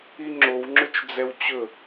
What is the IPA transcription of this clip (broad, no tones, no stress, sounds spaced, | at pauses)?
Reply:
i ŋ͡ǁ o w ŋ͡ǁ ɵ t͡ʃ d͡z ɛ w t͡ɕ ɵ